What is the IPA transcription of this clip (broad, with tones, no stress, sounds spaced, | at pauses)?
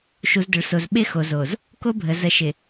ʃ u˨ z d ə˨ ɭ s o˨ z ɓ ɪ˦ x o˨ z o˨ z | k o˦ bʱ ə˨ z ə˨˦ ʃ ɪ˨